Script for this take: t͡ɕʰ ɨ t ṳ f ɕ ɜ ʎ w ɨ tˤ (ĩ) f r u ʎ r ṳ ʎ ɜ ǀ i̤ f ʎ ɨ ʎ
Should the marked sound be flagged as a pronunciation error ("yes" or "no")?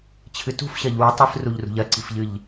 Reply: yes